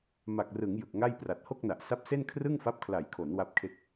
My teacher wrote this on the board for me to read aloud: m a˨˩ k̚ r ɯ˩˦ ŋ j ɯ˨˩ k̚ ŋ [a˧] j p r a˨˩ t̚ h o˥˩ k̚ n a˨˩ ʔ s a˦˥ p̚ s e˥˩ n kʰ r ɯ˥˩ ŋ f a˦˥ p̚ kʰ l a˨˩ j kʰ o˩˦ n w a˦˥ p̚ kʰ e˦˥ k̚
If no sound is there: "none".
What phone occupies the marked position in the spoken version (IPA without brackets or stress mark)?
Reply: a˥˩